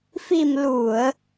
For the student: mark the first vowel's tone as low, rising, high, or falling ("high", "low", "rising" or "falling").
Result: low